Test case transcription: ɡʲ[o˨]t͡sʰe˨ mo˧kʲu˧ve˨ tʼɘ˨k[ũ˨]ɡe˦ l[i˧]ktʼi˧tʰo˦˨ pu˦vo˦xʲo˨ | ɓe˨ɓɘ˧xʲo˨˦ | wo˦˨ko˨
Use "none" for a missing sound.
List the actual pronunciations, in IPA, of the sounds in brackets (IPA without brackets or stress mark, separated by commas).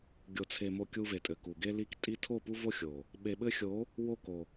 o˨, u˨, i˧